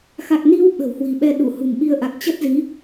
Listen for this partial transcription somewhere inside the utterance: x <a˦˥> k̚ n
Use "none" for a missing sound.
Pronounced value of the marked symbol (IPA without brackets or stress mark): a˨˩